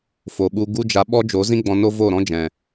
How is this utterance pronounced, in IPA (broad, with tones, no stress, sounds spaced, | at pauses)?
f o˨ ɓ u˧ ɡ u˦ d͡ʒ a˧ ɓ ɔ˦ d͡ʒ o˨˦ z ĩ˦ ɡ͡b ɔ̃˧ n o˦ v o˦˨ ɾ ɔ̃˦ d͡ʒ ɛ̃˨